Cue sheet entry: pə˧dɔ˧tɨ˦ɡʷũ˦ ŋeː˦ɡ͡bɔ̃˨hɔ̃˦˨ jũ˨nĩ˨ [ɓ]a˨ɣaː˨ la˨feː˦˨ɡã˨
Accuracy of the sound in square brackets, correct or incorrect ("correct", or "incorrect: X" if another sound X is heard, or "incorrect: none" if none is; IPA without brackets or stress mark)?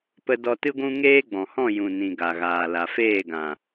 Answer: incorrect: ɡ